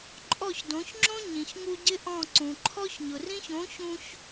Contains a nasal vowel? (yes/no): yes